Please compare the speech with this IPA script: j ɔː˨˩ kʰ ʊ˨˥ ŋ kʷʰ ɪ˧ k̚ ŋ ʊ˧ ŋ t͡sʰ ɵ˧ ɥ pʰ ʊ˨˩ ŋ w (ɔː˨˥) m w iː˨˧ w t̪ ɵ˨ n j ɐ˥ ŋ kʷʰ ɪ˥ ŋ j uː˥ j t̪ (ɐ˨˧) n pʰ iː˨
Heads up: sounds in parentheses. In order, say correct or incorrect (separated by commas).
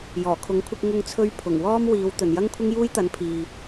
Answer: incorrect, incorrect